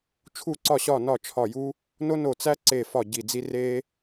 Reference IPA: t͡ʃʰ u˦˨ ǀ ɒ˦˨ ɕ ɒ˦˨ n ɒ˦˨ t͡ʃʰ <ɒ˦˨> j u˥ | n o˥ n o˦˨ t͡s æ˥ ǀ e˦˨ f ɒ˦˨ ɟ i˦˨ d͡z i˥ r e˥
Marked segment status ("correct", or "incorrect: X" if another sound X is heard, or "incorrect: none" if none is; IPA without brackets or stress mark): correct